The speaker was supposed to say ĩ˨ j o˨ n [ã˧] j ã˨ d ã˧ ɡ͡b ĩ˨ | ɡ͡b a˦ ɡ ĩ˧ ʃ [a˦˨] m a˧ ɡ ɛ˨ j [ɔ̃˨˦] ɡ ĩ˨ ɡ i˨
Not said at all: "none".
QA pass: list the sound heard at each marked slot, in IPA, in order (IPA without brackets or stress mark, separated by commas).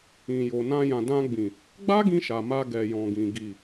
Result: ã˧, a˨, ɔ̃˨